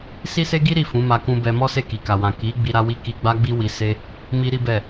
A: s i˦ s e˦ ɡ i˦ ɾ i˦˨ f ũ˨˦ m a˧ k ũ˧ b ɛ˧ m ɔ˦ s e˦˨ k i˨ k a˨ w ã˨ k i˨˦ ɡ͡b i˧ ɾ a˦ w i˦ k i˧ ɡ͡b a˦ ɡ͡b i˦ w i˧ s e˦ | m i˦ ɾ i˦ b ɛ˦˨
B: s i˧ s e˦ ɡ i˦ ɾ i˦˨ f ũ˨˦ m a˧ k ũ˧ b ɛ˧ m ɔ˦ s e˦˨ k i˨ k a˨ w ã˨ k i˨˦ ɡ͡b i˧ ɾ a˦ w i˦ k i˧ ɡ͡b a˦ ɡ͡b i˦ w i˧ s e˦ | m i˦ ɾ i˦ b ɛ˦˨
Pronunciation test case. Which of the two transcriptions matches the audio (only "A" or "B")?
A